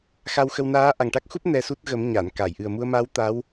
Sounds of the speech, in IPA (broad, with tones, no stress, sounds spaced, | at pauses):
x a˧ w x ə˧ w n aː˧˥ ʔ a˨˩ ŋ ʈ a˦˥ k̚ x u˦˥ p̚ n ɛ˧ s u˦˥ t̚ ɣ ə˨˩˦ m ɲ a˨˩˨ n k a˨˩˨ j ʔ ɨ˨˩ ə̯ m u˧ ə̯ m a˧˥ w t̪ a˧˥ w